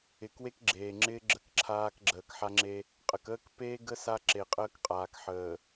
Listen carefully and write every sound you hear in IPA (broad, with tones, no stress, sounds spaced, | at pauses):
ɪ˨ k w e˦ k ɡ͡ǁ eː˨ ŋ͡ǁ ɪː˦ ɡ͡ǁ ə˦˨ k ǁʰ aː˦ k ɡ͡ǁ əː˨ k ħ a˦ ŋ͡ǁ e˦ | qʼ ə˨ k əː˦ k p eː˦ ɡ ə˦ s a˦ ǁ e˨ qʼ əː˦ k qʼ aː˨ k ħ əː˨